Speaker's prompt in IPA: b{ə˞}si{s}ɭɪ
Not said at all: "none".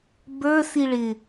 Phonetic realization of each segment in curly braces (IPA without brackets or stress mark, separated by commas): ə˞, none